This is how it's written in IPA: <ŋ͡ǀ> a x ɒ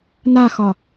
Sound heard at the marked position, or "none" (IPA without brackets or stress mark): n